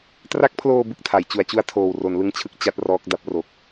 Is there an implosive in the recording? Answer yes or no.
no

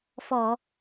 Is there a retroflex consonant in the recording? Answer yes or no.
no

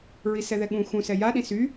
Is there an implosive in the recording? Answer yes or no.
yes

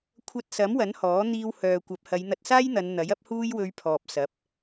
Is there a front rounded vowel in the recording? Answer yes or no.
yes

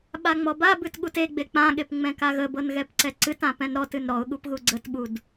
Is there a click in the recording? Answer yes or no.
yes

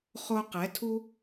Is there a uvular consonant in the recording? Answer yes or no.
yes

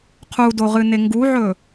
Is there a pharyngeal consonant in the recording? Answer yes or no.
yes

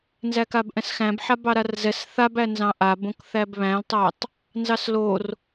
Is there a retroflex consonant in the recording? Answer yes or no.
no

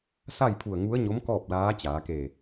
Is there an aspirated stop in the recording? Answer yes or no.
yes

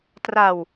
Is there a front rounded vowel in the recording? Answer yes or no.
no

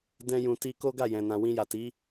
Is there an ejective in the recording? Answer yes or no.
no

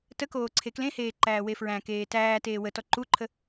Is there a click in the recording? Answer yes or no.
yes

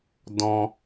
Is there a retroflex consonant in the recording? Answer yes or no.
no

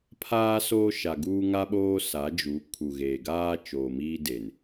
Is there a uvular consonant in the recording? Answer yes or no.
no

